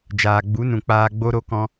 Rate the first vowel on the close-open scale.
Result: open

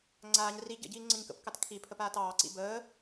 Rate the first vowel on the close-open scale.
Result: open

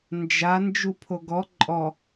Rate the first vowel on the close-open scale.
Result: open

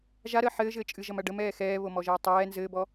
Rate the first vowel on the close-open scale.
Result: open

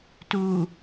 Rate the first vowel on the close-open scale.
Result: close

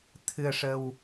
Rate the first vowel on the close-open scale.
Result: close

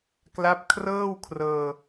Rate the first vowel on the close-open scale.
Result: open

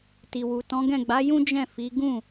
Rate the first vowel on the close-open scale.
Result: close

